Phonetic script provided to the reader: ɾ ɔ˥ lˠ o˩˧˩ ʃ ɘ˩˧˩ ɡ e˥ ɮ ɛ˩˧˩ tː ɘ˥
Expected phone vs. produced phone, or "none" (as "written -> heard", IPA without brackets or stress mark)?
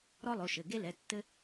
ɮ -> l